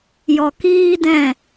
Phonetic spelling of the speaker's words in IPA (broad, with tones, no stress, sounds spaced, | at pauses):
j ɔ˨ k iː˦ d ɛ̃˦˨